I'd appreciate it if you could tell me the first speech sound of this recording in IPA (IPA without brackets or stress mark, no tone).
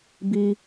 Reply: b